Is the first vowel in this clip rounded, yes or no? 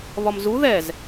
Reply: yes